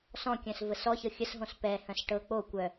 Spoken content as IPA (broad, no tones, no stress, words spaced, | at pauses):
sɔ̃kʲœ̃s vəsɔçɤ xʲəsɦõs pɛhœ̃s ʈɤ k͡po kʷœ